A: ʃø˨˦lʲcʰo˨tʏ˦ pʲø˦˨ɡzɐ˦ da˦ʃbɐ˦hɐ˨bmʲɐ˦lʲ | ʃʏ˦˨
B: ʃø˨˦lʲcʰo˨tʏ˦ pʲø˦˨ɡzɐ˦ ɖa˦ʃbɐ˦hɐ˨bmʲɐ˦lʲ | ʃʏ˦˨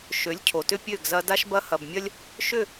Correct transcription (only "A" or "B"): A